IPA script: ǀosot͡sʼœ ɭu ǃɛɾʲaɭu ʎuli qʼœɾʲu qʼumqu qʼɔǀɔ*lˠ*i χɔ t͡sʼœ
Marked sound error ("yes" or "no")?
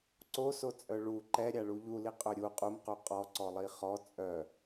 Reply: no